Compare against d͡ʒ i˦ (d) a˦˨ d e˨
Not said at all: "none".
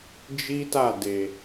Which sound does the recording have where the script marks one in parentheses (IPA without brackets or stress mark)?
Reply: t